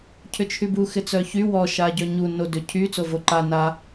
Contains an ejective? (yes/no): no